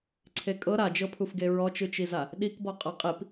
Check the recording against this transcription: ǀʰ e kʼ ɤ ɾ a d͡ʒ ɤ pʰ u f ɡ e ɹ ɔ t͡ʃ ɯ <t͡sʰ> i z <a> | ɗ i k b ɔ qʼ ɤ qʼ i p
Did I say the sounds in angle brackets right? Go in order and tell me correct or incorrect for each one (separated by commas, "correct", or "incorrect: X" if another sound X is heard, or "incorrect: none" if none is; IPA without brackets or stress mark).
incorrect: t͡ʃ, correct